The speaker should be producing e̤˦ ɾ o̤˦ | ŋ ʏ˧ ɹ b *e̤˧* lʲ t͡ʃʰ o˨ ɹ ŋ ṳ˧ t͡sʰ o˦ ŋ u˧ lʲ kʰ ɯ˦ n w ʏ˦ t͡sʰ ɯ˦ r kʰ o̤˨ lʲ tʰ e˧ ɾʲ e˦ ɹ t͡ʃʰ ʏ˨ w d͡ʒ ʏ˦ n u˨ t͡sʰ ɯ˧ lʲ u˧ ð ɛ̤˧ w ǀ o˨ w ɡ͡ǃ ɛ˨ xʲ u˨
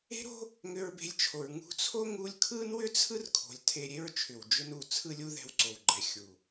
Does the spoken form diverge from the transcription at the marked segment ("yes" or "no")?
no